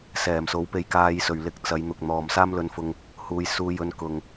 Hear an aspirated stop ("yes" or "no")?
no